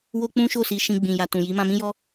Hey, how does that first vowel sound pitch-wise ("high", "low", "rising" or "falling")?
high